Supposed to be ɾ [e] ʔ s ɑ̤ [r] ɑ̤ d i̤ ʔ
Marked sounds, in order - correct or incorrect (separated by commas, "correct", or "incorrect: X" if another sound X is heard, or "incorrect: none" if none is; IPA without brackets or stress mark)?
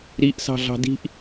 incorrect: i, incorrect: ɮ